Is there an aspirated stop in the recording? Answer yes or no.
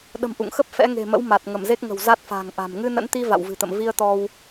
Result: no